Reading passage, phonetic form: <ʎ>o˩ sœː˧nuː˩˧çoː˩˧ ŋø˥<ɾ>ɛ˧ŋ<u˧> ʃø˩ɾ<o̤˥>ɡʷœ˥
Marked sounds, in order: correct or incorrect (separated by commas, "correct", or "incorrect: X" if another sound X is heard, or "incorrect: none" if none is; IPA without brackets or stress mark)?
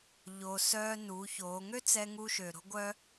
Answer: correct, incorrect: t͡s, correct, correct